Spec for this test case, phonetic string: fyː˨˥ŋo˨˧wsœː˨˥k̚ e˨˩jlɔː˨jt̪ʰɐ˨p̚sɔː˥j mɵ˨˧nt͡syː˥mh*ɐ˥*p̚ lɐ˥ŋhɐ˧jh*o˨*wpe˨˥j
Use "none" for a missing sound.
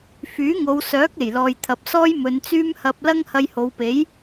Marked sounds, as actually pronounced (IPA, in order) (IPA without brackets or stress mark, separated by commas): ɐ˧, o˨˧